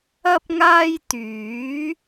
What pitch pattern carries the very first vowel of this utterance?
high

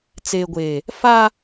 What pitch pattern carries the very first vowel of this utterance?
low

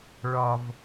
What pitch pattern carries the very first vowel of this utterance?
low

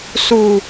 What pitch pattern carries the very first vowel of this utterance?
low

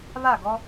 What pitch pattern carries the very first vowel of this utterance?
falling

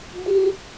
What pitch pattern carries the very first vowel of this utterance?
high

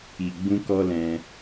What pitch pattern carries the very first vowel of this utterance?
low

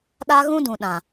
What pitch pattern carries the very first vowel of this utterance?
high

